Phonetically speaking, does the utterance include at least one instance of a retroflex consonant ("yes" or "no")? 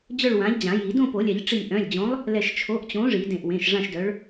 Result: yes